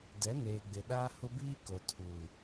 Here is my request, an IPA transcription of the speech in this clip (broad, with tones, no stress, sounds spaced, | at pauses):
d ɛ˨˦ n eː˨ ɡ͡b ɪ˨ ɗ aː˦ h ʊ˦ b iː˦ k o˨ tʰ uː˨